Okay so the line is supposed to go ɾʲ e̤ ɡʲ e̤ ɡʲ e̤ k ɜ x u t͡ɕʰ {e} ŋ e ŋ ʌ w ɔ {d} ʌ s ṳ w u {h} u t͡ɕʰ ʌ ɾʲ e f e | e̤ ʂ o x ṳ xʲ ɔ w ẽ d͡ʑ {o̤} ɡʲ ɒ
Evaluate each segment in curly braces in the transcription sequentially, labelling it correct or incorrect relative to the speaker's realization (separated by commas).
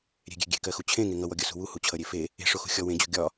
incorrect, incorrect, correct, correct